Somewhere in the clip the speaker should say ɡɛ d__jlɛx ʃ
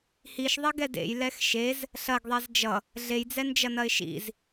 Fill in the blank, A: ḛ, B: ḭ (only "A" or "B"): A